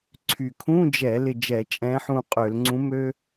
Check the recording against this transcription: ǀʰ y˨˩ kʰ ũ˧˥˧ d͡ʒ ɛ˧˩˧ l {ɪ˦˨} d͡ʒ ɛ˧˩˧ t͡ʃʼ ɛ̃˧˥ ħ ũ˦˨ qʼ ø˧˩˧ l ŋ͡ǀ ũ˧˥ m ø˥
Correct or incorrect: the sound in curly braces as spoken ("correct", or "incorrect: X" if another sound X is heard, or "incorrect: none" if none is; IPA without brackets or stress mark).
correct